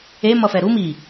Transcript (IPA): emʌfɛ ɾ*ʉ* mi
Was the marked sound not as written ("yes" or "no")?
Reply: yes